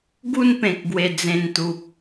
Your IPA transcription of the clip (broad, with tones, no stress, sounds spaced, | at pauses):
ɡ u˥˧ n p ẽ˨ k̚ ɡ w e˨˩ d͡z ẽ˨˩ n t̪ u˨ p̚